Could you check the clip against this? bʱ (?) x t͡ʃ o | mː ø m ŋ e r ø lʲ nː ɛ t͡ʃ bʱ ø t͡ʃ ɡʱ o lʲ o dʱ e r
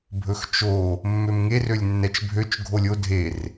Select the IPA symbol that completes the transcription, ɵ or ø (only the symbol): ɵ